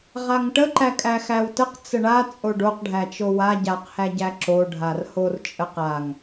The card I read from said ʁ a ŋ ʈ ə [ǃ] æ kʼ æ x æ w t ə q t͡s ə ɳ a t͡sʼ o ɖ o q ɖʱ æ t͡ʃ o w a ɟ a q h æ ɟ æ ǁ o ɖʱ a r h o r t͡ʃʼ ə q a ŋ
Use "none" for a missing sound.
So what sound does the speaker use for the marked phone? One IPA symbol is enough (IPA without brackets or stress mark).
ǃ